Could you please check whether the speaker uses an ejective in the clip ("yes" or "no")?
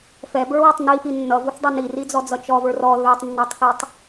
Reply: no